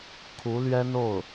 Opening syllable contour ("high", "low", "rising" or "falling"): rising